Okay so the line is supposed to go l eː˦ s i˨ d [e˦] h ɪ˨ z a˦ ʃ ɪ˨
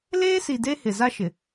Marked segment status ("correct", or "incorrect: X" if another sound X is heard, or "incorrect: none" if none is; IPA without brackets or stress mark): correct